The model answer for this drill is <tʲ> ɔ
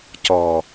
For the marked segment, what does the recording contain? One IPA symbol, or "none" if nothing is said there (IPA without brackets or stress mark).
c